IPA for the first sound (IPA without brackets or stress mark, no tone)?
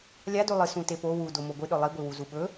lʲ